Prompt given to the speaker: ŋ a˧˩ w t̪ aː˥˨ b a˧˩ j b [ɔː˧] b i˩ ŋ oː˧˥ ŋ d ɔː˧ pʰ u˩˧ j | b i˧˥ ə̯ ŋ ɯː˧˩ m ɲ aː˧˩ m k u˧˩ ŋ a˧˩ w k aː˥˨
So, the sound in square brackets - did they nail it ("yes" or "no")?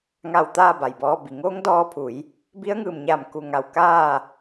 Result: yes